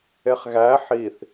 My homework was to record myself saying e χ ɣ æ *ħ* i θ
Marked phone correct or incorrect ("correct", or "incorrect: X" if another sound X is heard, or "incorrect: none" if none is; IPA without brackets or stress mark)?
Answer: correct